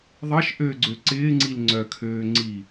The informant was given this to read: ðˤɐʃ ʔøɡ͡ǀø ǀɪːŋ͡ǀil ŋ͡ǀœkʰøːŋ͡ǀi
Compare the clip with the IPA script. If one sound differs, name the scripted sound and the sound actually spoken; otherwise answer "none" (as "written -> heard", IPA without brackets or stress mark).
none